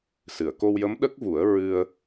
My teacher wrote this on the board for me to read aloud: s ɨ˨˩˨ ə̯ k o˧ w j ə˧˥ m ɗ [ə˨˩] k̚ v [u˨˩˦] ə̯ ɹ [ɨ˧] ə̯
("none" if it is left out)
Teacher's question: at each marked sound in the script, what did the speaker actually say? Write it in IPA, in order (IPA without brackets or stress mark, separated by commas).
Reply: ə˦˥, u˨˩˦, ɨ˧